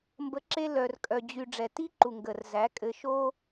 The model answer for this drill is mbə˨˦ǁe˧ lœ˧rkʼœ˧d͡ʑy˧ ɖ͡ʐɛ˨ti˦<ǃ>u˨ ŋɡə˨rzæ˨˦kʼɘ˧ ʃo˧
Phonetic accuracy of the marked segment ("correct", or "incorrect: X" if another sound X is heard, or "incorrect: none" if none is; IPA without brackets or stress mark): correct